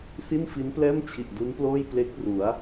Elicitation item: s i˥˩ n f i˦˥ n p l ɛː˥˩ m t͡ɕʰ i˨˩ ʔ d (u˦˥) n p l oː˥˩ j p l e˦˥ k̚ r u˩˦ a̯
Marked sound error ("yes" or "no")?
no